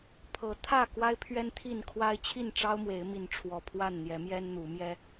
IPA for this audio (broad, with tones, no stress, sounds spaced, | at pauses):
pʰ ɤ˨˦ t̪ʰ ä˥˨ k w a˦ ɪ̯ pʰ ɥ ɛ˦ n t̪ʰ i˥˨ n kʰ w a˦ ɪ̯ t͡ɕʰ i˥˨ n ʈ͡ʂ ɑ˦ ʊ̯ m w e˨˦ ɪ̯ m i˨˦ n ʈ͡ʂʰ w ɔ˨˩ pʰ w a˥˨ n n̪ j ɛ˨˦ m j ɛ˦ n n̪ u˨˦ m j ɛ˦